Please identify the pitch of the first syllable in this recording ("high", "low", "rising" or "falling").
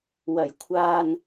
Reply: low